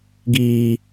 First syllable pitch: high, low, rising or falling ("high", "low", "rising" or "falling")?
low